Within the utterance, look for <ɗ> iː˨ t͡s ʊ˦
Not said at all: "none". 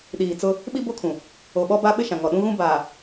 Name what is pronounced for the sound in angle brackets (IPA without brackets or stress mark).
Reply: ɗ